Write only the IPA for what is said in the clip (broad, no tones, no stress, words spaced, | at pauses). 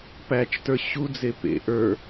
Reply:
pæt͡ʃtə˞ ɕud͡ze pḛ ʔə˞